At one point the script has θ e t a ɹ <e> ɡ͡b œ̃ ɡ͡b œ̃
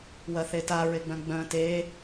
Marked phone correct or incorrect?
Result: correct